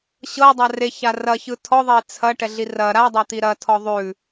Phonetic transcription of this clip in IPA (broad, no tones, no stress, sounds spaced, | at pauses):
ɕ ɤ dˤ a r e ç a r ɐ ç ɯ tʰ ɔ ðˤ e t͡sʰ ɐ ʈ ɛ ɮ i r ɐ ɾ a dˤ ɐ t̪ i ɾ ɐ tʰ ɔ ðˤ ʉ